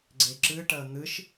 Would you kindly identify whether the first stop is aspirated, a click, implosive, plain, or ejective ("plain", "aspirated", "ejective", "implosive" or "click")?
click